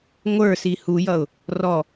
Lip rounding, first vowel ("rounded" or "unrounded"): unrounded